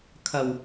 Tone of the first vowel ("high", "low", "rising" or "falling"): low